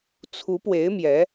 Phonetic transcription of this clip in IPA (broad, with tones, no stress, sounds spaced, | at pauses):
t͡sʰ u˧˥ p w e˧˥ ɪ̯ m j ɛ˧˥